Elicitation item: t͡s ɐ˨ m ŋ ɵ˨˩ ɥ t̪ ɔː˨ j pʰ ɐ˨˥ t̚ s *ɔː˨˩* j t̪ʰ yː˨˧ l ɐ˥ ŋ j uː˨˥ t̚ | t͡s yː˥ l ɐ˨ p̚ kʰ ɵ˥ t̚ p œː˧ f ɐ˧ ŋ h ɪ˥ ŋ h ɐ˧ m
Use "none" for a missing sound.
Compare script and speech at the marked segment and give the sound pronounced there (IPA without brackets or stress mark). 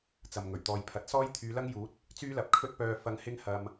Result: ɔː˥